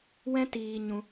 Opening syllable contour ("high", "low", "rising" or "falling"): high